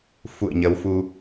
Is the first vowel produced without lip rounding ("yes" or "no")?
no